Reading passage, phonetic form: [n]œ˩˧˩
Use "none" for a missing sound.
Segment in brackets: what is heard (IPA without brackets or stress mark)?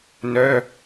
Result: n